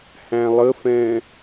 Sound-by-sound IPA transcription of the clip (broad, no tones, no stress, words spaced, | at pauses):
hæ̃lˠəfɛ̃